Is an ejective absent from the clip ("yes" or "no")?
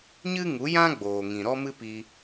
yes